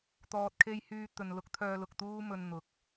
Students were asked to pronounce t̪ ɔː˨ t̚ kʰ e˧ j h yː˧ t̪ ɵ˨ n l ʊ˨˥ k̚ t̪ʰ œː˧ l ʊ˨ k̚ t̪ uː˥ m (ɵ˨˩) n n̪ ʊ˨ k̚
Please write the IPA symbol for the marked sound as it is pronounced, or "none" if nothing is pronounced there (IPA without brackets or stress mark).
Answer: ɵ˧